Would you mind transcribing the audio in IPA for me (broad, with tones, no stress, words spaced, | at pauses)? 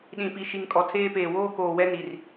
ɗĩ˨ pi˨ʃi˨ŋ kʼɔ˨tʰeː˦peː˨ woː˦koː˨wɛ˦ni˨r